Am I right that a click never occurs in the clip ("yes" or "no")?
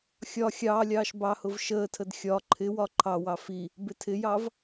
no